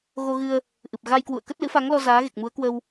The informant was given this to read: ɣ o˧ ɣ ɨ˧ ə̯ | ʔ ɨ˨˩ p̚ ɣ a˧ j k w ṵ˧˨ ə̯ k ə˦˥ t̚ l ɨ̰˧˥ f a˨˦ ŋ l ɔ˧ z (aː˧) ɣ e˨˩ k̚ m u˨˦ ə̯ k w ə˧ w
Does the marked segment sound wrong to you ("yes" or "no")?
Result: yes